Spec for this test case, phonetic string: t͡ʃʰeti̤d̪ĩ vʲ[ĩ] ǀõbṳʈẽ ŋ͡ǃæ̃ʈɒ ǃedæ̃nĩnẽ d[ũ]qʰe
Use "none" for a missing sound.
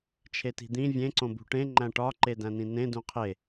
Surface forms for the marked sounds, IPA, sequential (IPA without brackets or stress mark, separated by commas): ẽ, ũ